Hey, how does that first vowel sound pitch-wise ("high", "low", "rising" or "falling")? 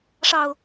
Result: low